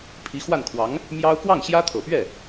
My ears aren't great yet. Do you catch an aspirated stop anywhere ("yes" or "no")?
yes